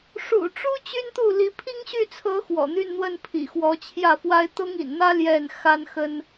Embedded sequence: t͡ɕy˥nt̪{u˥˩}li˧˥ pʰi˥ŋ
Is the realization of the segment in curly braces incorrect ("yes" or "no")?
no